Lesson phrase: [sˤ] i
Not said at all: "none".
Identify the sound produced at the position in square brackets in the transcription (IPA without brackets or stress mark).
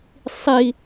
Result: sˤ